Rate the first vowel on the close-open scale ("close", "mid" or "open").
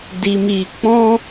close